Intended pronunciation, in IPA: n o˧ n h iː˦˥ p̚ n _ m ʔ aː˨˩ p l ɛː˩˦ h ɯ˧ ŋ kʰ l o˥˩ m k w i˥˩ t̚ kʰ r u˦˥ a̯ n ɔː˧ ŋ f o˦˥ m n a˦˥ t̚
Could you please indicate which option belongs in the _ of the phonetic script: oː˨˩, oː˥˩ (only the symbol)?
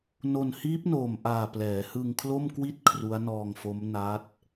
oː˨˩